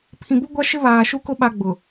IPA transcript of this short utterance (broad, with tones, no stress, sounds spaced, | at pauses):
pʰ ĩ˨ b u˦ ɡʷ a˦ ʃ ɪ˦ β aː˨ ʃ u˦ k ʊ˦ ɓ a˦ ɡ͡b ʊ˨